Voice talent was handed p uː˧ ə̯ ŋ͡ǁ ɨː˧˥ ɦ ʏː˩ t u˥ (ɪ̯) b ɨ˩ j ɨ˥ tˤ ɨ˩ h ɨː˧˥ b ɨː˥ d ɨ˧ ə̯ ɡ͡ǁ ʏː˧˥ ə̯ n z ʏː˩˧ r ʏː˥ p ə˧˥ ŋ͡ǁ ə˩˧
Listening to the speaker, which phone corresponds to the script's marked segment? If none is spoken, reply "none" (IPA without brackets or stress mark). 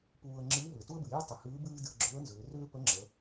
ə̯